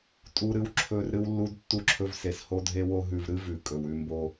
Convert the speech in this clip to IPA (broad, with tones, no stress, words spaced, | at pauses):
tʼu˦ɾɨ˦w ǁʰɵ˦r ɾɨ˦wlːu˦d tːu˦ǁʰɵ˦vse˧s ho˦dʱe˦wo˦ ɦʉ˧vɾɨ˦vʉ˨ kʼɵ˨wʉ˧mbo˧